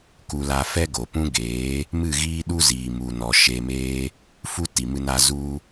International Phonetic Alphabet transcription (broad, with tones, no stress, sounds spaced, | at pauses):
k u˧ l a˧ f ɛ˦ ɡ o˨ p ũ˦ ɡ eː˨˦ | m ɨ˦˨ ɣ iː˦ ɗ u˦ z iː˨ m u˨ n ɔ˨ ʃ e˧ m eː˦ | f u˦ t i˨ m ɨ˧ n a˧ z u˧